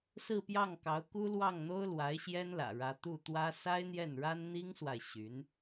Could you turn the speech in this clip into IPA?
s ɹ̩˥˧ p j ɑ˥˩ ŋ k ɑ˧˥ ʊ̯ k u˥ l w ɑ˥˩ ŋ n̪ o˥ ʊ̯ l w a˧˥ ɪ̯ ɕ j ɛ˥ n l ä̰˨˩ ɻ ä˧˥ t̪ u˥˩ t̪ w ä˥ s a˥ ɪ̯ n̪ j ɛ˥˩ n ɻ a˥ n n̪ i˥ ŋ s w a˨ ɪ̯ ɕ y˧˥ n

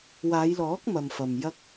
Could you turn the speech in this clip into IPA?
w aː˨˧ j l ɔː˨˥ k̚ m ɐ˨ m f ɐ˨ m j ɐ˧ k̚

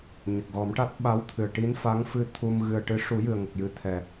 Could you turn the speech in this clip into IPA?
ɲ ə˨˩ k̚ ɣ ɔ˨˩˦ m ʈ a˦˥ t̚ ɓ a˧˥ w t̪ʰ ɨ˨˩ ə̯ ʈ i˧˥ n f a˧˥ ŋ f ɨ˧ t̪ʰ u˧ m ɣ ɨ˨˩ ə̯ ʈ ɨ˧˥ ʂ u˨˩˦ j ɨ˨˩ ə̯ ŋ ə˨˩ k̚ j ɨ˨˩˦ t̪ʰ ɛ˨˩

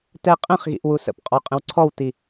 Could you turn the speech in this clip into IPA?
t ɛ qʼ ə̃ χ ɣ ḭ ʔ w u s ə̰ p qʼ ɔ qʼ ə̃ w ǀʰ ɔ w t i

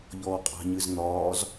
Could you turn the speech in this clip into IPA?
ʎ ɔː qʼ a̤ ɲ ɨ z n̪ ɒː z

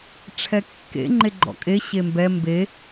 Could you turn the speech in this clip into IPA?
ʈ͡ʂʰ ɛ kː ḛ ŋ͡ǃ e ɡ͡ǃ ɔ̰ kʼ e ɕ e m b ɛ m b e

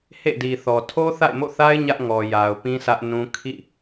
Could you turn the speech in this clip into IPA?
h ḛ˦˨ d i˨ θ ɔ˨ tʰ o˦ θ a̰˦˨ ɪ̯ m o̰˦˨ θ a˦ ɪ̯ ɲ ä˦ ʔ ŋ ɔ˨ j a˨ ʊ̯ p ĩ˦ sʰ ä˦ ʔ n ũ˦ kʰ ḭ˦˨

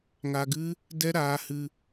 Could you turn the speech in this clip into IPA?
ŋ a˧ ɡ ɨ˦ | d ɛ˦ ɾ aː˧ h ɨ˧

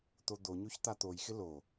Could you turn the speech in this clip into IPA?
t̪ o d̪ o ɲ o ç t̪ a t̪ o j x ɪ l o

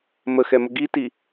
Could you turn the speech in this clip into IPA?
m ə x ɛ m ə ɡ i t i

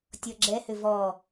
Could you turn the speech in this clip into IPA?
tʲ ɔ ɡ͡ǁ ɛ h ʏ v ɔ

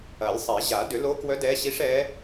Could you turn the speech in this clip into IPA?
ɐ˨˩˦ lʲ sˤ ɛ˨˩˦ ʑ a˨˩˦ d ʏ˨˩˦ l o˧˥ k w œ˧˥ d ɛ˧˥ ɕ i˧˥ ʂ ɛ˧˥

